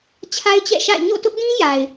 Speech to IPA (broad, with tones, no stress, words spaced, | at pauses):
t͡ɕʰa˦ɪ̯t͡ɕɛ̰˦˨ʃa̰˦˨ɪ̯ ɲo̰˦˨tʊ˦ʔdĩ˦ ja˨ɪ̯